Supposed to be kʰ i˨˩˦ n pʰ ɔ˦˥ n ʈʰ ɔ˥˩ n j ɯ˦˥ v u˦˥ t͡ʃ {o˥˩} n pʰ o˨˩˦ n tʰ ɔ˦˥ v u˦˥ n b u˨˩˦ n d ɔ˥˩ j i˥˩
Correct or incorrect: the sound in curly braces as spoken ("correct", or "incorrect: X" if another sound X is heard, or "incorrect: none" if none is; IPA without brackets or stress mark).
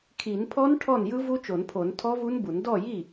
incorrect: o˨˩˦